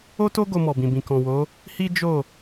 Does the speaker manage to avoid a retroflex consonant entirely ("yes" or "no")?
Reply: yes